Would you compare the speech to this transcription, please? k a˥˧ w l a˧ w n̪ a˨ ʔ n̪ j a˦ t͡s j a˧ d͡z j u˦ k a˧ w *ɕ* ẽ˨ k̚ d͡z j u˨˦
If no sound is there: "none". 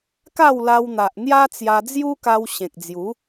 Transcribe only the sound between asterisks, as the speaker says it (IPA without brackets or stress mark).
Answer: ɕ